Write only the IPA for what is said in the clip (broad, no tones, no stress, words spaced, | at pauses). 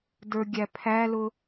də˞ɡʲæpʰælʊ